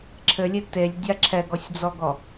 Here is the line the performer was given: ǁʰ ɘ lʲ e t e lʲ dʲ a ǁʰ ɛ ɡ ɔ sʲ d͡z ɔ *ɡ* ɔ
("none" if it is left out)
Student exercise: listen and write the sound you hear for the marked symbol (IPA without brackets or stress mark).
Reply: ɡ